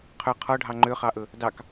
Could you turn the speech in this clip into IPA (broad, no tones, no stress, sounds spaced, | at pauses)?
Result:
qʰ ɵ qʰ ɔ ɖʱ ɑ ŋ͡ǃ ø χ ɑ ʔ ɵ | d ɑ k